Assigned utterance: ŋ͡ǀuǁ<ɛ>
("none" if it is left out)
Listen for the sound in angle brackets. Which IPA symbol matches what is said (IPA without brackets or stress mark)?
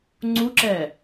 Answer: ɛ